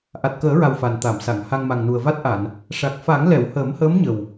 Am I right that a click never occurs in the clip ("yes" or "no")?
yes